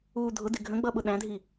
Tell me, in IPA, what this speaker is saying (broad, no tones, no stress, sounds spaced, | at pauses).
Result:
uː dʱ ʊ d ɪ ɡʱ ə̃ ɡ͡b ʌ ɓ ʊ ɗ æ̃ dʱ i